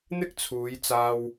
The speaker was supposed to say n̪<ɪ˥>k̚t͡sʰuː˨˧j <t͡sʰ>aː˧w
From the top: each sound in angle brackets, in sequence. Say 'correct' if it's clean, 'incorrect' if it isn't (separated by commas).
correct, incorrect